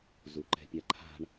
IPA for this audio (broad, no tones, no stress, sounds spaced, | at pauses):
z u ǃ ɛ̤ pʲ a ǃʰ a̤ ɳ